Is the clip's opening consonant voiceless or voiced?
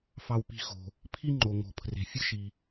voiceless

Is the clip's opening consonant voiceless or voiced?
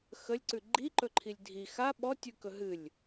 voiceless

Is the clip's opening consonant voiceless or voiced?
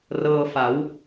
voiced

